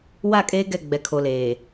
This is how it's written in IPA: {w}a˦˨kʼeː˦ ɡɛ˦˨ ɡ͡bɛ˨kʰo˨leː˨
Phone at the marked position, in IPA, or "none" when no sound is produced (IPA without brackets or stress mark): w